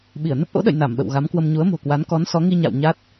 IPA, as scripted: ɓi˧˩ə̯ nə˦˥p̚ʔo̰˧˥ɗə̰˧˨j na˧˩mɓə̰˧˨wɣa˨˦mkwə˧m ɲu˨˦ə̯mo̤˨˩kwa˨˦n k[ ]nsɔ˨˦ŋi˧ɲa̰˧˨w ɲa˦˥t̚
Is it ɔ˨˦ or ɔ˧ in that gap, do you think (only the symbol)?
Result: ɔ˨˦